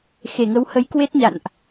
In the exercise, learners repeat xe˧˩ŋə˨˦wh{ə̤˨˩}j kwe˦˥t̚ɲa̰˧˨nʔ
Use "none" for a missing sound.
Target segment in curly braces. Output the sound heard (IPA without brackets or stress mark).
ə˨˦